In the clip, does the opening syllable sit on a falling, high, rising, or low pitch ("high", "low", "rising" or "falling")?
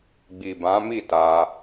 low